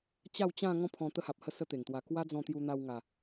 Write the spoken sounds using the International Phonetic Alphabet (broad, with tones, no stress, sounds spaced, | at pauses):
t͡ɕ a˥˧ w t͡ɕ ã˥˧ ŋ ɔ̃˥˧ pʰ ɔ̃˧ t̪ ə˦ h a˨ p̚ h ə˥˧ s ə˦ t̪ e˨˩ ŋ t̪ w a˧ k w a˦ d͡z ɔ̃˧ t̪ j u˧ n̪ a˧ w ŋ a˨˩